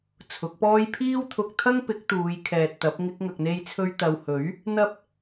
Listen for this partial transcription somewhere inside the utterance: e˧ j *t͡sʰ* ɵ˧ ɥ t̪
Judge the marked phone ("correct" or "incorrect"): correct